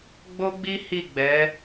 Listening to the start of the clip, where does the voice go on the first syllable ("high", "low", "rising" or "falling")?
high